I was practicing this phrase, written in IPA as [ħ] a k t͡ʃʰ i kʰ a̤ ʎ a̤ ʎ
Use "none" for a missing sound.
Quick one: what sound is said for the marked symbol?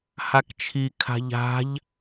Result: h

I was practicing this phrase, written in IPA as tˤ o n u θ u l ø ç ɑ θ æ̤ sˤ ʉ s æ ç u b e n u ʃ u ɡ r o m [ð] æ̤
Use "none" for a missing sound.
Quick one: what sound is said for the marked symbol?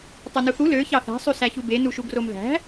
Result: ð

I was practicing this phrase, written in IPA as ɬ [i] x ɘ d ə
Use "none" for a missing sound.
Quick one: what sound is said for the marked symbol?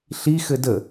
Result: i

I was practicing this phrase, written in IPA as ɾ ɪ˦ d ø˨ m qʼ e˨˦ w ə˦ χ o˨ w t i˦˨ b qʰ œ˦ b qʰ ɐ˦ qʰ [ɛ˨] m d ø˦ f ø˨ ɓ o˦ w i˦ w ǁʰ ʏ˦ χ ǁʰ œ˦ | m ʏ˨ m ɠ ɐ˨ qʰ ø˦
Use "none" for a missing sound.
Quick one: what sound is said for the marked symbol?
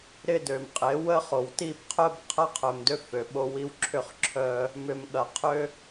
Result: œ˨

